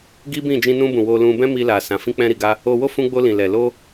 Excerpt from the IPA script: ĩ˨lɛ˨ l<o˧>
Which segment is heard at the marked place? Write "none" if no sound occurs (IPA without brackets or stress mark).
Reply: o˧